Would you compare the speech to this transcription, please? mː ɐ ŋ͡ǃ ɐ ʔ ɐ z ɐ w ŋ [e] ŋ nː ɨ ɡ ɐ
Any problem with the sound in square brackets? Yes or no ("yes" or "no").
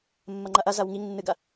yes